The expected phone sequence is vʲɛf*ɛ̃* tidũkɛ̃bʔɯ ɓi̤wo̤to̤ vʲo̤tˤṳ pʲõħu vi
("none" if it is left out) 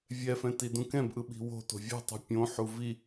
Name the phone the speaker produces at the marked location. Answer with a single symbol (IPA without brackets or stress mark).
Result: ɛ̃